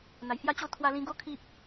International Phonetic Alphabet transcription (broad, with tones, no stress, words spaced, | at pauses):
n̪a˨˩jhja˦t͡ɕo˥˧ t̪ʰwa˧lĩ˧ɡo˦ kʰi˦p̚